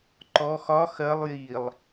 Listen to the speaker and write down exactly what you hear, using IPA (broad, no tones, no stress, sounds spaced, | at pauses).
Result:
ǃ ɔ x ɒ x ɜ lˠ j i lˠ